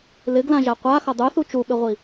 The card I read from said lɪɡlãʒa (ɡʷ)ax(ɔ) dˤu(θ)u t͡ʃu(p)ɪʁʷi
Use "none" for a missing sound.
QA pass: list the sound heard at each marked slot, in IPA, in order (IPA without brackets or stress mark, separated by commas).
qʷ, ʌ, θ, ɓ